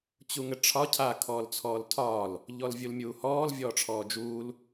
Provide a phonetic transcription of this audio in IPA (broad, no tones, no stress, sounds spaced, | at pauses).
t͡ɕ u ŋ ɘ ʈ͡ʂʰ ɒ cʰ a kʰ ɔː l t͡sʰ ɔː l tʰ ɒː l | ʎ ɔ l vʲ u l mʲ uː h ɔː l vʲ ɔː ʈ͡ʂʰ ɔː d͡ʒ uː l